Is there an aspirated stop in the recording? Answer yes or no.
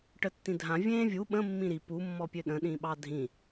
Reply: no